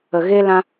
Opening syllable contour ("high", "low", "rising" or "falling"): low